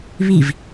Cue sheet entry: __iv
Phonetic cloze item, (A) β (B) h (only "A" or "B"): A